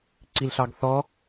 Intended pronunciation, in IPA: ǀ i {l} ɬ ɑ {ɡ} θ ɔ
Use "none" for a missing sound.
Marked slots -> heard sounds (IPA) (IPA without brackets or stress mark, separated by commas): l, ɡ